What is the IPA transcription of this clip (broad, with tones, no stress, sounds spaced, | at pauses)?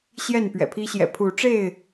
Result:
ɕ j ɛ˥˨ n p ɥ ɛ̰˨˩ pʰ i˦ ɕ j ɛ̰˨˩ pʰ u˨˦ ʈ͡ʂ e˥˨ ɪ̯